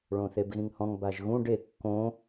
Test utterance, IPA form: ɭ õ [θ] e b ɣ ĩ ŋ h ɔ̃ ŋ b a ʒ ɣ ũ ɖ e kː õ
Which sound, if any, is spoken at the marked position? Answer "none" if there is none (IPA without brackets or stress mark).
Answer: θ